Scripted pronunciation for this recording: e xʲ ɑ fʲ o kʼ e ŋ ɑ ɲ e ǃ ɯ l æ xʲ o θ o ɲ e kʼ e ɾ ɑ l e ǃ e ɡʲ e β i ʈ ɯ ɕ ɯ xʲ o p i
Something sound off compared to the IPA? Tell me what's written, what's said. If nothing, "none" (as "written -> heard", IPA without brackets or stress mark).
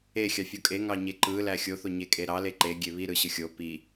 ʈ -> ɾ